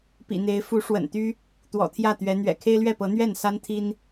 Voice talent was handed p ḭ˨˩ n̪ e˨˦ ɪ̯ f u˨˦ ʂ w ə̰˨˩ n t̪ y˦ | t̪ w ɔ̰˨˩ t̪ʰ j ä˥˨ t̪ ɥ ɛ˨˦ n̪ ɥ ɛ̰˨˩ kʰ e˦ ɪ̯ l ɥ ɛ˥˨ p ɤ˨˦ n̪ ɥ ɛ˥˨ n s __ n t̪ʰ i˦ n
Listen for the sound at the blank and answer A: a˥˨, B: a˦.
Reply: B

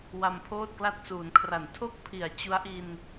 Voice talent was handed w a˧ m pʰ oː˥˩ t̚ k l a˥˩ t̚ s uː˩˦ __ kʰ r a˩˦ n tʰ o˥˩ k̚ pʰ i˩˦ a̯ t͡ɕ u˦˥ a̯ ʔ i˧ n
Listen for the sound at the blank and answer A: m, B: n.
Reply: B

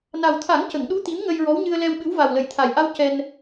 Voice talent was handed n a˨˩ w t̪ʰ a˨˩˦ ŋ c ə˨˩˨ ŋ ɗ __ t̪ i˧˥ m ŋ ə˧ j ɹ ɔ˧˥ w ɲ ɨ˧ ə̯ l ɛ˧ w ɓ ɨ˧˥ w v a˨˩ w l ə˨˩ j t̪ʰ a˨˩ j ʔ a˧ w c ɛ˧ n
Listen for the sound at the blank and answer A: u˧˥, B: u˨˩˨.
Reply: A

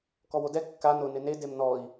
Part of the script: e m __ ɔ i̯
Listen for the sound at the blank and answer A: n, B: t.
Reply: A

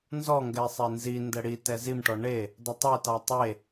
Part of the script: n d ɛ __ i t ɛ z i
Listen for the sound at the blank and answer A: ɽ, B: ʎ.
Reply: A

